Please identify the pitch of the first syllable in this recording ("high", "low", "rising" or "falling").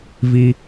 high